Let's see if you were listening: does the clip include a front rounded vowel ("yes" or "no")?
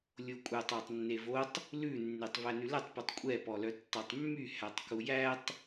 yes